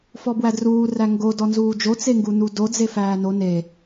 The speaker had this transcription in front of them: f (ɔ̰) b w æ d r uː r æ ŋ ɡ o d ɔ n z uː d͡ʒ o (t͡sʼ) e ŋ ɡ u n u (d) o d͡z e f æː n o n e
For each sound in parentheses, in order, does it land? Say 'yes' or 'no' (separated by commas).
no, no, yes